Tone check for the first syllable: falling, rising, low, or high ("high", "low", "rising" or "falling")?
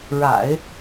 low